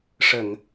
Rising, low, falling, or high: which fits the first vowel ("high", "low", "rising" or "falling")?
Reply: low